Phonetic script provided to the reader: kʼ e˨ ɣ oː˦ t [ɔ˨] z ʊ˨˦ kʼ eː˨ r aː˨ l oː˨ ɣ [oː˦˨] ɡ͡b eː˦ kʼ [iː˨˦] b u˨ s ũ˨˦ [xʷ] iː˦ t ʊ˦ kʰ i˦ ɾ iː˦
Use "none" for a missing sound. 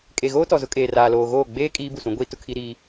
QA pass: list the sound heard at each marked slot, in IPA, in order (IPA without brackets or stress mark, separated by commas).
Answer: ɔ˨, oː˦˨, iː˦, ɡʷ